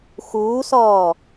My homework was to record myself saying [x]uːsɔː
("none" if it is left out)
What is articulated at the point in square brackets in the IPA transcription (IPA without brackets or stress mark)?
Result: x